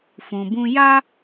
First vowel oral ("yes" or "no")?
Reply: no